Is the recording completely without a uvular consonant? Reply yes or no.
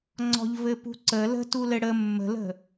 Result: yes